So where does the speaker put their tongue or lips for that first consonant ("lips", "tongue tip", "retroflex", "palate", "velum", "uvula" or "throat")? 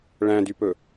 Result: retroflex